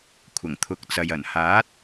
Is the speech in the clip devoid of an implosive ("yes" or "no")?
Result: yes